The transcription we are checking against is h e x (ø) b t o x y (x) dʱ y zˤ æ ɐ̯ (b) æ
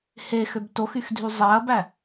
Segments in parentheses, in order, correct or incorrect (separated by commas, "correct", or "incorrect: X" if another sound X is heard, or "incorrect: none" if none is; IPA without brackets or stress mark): correct, correct, correct